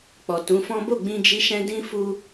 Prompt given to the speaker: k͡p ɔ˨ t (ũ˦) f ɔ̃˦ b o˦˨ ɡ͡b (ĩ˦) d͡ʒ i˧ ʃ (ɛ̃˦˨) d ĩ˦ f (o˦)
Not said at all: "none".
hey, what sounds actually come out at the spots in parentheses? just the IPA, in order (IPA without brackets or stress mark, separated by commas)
ũ˨˦, ĩ˧, ɛ̃˧, u˦